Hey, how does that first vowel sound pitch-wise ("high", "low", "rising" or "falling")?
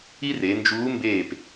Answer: high